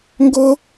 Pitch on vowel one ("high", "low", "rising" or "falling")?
high